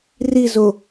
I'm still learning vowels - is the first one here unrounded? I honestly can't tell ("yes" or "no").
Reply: yes